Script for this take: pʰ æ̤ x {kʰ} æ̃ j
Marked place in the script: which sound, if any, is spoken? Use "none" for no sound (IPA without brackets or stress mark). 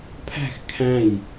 kʰ